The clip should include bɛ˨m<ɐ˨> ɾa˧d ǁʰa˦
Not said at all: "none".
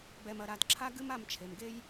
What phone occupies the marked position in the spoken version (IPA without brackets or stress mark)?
ɐ˨